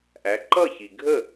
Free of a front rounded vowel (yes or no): yes